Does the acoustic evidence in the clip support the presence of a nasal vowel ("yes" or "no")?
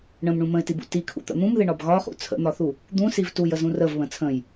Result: yes